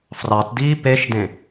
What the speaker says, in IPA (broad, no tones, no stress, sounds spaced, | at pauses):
f r ɑ t d iː p e ʃ d ẽ